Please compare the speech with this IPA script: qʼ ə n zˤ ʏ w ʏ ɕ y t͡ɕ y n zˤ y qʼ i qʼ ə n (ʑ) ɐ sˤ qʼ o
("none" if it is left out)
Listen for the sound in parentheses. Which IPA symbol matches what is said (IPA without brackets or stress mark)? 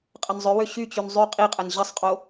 ʑ